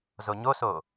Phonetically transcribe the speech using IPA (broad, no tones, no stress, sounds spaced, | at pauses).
z o ɲ o s o